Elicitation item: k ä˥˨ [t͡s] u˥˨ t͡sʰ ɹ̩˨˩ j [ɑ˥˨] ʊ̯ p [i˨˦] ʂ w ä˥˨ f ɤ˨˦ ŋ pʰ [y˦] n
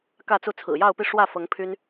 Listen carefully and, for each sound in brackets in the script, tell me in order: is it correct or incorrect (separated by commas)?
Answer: correct, correct, incorrect, correct